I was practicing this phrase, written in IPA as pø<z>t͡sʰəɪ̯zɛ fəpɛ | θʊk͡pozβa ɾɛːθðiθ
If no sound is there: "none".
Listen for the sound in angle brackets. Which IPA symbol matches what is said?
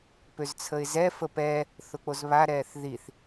z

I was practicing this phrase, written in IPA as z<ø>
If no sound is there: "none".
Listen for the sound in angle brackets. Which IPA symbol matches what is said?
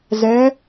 ɛ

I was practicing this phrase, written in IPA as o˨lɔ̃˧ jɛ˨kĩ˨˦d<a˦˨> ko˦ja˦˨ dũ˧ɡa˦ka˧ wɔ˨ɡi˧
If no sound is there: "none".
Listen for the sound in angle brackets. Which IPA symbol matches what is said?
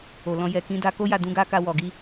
a˧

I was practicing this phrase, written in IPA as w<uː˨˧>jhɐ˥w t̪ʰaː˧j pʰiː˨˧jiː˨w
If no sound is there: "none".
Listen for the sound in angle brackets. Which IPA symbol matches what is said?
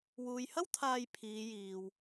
uː˨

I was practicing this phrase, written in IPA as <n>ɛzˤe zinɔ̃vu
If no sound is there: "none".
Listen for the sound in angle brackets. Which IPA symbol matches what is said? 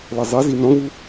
l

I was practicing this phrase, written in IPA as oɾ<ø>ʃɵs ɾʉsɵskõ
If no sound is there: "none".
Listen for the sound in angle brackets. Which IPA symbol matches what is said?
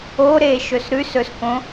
e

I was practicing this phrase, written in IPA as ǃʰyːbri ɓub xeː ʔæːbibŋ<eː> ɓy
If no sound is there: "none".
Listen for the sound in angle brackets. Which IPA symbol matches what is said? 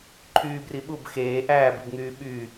yː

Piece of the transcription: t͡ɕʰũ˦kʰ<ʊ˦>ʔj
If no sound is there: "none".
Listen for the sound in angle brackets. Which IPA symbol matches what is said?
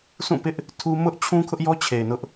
ʊ˦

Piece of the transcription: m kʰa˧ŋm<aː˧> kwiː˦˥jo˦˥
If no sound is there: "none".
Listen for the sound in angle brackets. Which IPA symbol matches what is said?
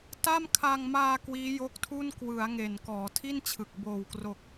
aː˧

